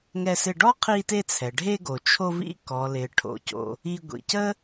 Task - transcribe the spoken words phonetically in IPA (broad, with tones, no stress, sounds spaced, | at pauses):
ŋ ɛ˧ s ɪ˧ ɖ ɔ˥ qʰ i˧ t e˧ t͡sʰ ɛ˩ ɖʱ e˧ ɡ o˩ t͡ʃʰ o˧ v ḭ˧ k ɔ˩ l ɪ˩ ʈʰ o̰˩ c o̰˩ | i˧ ɡʷ ḭ˩ c ə˥